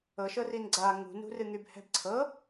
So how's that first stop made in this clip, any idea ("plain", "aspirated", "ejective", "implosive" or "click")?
click